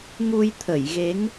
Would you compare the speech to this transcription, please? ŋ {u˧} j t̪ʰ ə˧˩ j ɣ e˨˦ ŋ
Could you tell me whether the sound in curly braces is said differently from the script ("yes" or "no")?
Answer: no